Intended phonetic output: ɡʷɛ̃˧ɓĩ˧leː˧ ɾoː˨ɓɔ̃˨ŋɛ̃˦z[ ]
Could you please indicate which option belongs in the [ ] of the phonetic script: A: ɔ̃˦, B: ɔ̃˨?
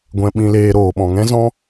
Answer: A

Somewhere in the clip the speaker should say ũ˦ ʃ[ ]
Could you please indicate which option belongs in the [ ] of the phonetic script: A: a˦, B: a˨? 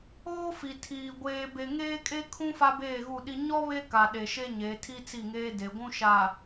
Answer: B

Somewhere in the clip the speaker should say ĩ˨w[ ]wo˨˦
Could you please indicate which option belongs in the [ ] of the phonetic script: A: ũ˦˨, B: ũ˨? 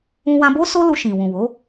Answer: B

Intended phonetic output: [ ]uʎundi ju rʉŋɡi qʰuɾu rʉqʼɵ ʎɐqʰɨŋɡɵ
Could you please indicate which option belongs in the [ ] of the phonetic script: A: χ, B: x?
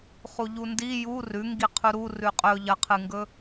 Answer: A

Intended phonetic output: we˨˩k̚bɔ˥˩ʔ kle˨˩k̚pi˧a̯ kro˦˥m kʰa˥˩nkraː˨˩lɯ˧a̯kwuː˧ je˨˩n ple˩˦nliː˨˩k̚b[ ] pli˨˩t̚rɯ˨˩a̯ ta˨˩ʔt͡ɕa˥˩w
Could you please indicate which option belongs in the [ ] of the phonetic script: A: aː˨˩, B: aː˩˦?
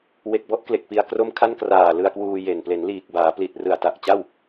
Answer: B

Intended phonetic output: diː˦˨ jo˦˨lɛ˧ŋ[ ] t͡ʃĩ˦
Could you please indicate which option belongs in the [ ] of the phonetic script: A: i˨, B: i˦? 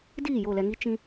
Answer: B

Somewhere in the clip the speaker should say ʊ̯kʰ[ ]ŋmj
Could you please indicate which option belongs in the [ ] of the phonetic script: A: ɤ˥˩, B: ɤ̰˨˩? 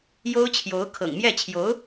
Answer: B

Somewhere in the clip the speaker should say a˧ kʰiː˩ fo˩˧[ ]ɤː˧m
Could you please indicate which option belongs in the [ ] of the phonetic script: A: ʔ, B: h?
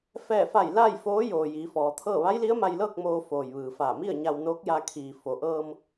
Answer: A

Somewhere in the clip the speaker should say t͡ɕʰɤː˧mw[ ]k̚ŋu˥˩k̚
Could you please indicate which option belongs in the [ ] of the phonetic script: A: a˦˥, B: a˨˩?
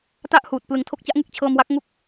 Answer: A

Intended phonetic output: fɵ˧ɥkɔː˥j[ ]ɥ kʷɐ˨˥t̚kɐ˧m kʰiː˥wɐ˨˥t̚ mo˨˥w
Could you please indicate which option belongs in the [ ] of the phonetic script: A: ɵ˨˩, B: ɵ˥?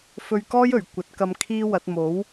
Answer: A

